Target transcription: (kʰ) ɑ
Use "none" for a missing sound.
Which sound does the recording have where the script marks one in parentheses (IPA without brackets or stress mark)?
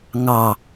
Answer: ŋ